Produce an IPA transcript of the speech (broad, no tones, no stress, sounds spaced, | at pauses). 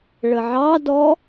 ɭ ə ʕ ɑ d ɔ